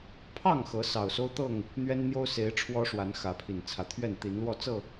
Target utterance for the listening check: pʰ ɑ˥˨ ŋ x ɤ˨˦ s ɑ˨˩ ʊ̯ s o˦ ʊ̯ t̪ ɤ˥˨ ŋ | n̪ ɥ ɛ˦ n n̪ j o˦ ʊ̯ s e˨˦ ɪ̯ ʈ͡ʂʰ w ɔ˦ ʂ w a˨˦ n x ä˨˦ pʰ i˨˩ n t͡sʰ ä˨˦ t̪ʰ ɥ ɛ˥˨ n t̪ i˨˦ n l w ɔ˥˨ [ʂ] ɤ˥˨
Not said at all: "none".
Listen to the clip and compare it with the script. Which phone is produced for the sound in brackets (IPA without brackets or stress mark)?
t͡s